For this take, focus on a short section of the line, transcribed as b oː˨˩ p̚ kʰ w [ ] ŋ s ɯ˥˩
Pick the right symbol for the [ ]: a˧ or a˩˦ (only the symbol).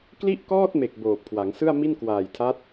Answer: a˩˦